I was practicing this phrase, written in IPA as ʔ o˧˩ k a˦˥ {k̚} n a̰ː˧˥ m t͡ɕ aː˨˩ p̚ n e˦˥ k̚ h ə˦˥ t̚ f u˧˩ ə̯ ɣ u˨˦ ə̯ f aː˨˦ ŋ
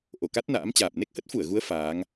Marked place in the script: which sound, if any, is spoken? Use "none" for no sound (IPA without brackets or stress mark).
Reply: t̚